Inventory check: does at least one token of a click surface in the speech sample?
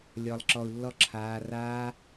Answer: yes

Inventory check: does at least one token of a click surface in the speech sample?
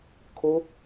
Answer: no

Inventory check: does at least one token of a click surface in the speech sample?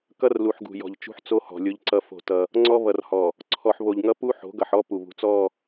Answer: yes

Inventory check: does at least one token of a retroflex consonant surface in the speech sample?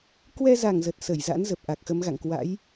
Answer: no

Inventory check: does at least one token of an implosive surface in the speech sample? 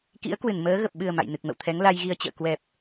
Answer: yes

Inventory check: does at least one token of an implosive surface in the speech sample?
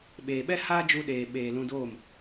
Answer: yes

